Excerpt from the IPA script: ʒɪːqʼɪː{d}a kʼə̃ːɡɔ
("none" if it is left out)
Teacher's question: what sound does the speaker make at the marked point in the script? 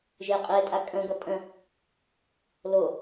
tʼ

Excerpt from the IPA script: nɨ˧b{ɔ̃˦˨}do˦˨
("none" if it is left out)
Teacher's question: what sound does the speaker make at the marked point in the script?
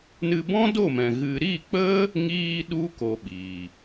ɔ̃˦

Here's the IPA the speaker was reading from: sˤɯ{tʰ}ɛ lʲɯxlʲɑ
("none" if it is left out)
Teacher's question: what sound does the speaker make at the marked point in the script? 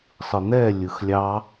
n̪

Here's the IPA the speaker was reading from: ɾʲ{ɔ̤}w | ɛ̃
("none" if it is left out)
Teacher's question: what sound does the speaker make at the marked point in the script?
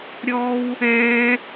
ɔ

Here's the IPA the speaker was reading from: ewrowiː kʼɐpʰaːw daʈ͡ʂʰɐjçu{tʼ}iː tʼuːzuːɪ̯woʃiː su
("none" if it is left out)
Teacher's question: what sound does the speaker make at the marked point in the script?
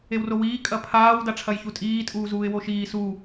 tʼ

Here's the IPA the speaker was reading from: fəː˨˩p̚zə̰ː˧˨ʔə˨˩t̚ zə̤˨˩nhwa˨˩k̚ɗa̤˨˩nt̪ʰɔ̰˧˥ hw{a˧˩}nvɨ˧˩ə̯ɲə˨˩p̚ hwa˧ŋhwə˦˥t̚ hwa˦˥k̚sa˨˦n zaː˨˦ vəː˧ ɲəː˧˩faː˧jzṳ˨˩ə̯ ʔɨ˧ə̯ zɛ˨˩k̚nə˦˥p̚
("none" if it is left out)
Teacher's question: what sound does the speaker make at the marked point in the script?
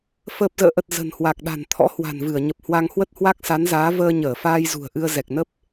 a̤˨˩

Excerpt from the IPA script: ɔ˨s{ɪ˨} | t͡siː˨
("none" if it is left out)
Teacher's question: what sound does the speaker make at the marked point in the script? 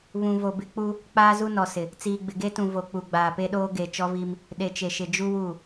ɪ˨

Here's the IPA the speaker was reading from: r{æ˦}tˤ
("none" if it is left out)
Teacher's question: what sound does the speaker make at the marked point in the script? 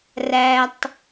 æ˦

